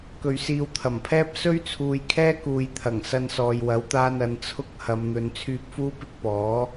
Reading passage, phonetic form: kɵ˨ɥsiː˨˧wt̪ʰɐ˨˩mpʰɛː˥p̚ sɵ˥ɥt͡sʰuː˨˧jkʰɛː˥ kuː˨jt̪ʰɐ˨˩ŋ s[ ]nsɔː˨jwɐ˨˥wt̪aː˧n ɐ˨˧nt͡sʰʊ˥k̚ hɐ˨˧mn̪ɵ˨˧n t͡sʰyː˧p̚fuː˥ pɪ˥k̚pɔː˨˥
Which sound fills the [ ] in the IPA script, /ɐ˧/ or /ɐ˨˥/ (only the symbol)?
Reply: ɐ˧